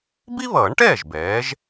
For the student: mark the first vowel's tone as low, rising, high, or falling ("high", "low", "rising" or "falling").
high